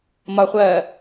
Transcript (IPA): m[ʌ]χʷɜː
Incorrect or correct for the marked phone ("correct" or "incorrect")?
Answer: incorrect